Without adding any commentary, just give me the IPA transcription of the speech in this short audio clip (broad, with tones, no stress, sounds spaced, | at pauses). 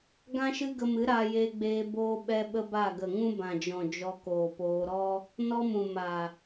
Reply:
ɡ ã˦ ʃ ɨ˦ ɡ ə˧ m ɨ˨˦ ɾ a˧ j e˧ ɡ͡b eː˧ b oː˦ ɓ ɛ˦ ɓ ə˦ b a˦˨ ɡ ə˨ ŋ ũ˦ b ã˨ d͡ʒ ɔ̃˨ d͡ʒ ɔ˧ k oː˨ p oː˧ ɾ ɔ˦ | n ɔ˦ m ũ˨ m a˨